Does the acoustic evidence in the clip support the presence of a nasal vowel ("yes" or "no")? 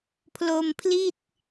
no